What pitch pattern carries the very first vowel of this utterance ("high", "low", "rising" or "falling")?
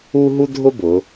high